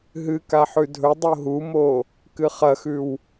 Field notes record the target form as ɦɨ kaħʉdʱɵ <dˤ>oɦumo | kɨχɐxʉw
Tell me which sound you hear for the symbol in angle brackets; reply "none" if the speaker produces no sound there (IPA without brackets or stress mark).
dˤ